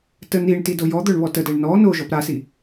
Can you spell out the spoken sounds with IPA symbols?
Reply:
tə niɳti dojɔd̪œɳ βɔtədɛɳ nɔ no ʒɔpɾasi

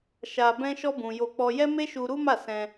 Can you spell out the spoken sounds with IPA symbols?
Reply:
ʃa˧ bɛ̃˦ʃɔ˦bũ˧ jo˧k͡pɔ˧jɛ˦me˦ ʃu˧ɾu˦ ma˦˨sɛ̃˧

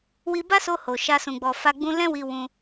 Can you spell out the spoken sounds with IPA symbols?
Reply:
wi˧ba˦so˧ ho˨ʃa˧ sũ˨ɡ͡bɔ˨fa˧ ɡ͡bũ˧ lɛ̃˦wi˧ wũ˧

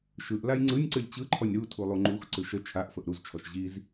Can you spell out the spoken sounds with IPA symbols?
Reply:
ʃɯʔ lajŋ͡ǀɯnʲǀɯlʲ t͡ɕɯǃʰɔnʲ ɾu tʰulˠuŋ͡ǃuxǀɯʃ ə t͡ʃʰaʔfəʔ ɾuzt͡ʃʰɔʃ ʑiz

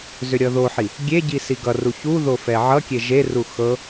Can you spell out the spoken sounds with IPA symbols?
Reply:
zʏɾʲʌðoħi | ɡʲeɟi siɡʌru çuðo fɛʕʌkʲe ʒeru xɤ

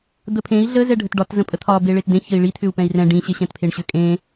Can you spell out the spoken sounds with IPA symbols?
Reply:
d̪əpʰẽi̯ ɮə zɛɖʱətɖɒt zə̃pʼət̪ʰɒ beɭetd̪ẽ çəi̯ɭi t̪ʰʏu̯pɛ̃i̯rɛ̃ ɖĩ ɕeɕɛ̃tpʰeɳɕʏ kʼẽ

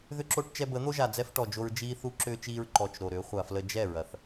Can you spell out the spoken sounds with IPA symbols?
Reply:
ðʏ˦ǁo˦ʈ t͡ʃɛ˧bə˨˦n̪o˦ʒa˨ d͡zɛ˦fʈɔ˨d͡ʒo˧ɹ d͡ʒiː˦ θu˧ǁʏː˧t͡ʃiː˧ɹ ǃɔ˨t͡ʃ ɾo˨ɾʏː˨˦ χʷa˨flə˧ d͡ʒɛ˦˨ɹɐ˨θ

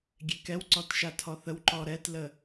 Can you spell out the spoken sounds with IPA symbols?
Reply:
ɡʲekɛwǀɔt ʃatʰɔθəwǃɔ ɾɛtlə

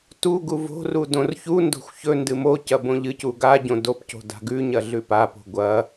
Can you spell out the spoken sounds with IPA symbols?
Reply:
tuɡu vo̤ru dõrçundo̤xʷ çɵ ndɨmocɐ bõʎɨcu ɡaɟõ dopco̤ da̤ɡʉɲɐ ɮʉpapo̤ ɡʷɐ

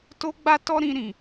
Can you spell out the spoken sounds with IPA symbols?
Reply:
to˦ɡ͡ba˦tɔ˦ ɾĩ˧ɾĩ˨

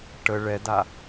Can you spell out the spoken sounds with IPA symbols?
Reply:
ʈə ɭɛda

